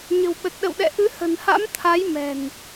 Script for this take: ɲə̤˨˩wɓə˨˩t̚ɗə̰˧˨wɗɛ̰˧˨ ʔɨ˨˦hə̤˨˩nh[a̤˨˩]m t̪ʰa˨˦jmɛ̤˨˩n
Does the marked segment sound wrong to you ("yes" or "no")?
yes